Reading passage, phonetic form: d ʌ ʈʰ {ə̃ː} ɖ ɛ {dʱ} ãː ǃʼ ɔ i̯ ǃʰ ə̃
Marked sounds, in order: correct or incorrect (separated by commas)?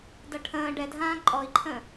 correct, correct